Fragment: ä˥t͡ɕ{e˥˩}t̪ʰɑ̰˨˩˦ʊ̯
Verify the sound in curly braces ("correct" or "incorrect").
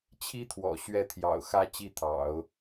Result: incorrect